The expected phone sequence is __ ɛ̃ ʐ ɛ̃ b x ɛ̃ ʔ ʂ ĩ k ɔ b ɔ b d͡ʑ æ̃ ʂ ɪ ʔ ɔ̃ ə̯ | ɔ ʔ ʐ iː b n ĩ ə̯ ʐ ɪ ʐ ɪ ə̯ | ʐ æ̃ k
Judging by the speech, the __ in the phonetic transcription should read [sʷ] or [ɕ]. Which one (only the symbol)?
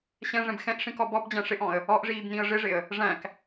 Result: ɕ